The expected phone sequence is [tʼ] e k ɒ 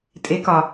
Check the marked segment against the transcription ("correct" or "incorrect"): correct